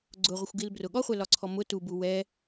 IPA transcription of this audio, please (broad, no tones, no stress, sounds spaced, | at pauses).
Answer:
ɡ͡ǀ ʊ ʁʷ ə xʷ ɡ i l b r ʊ ɠ ɔ χʷ ɛ l ɒ ǀʰ ɔ m ʊ t u b u w ɛ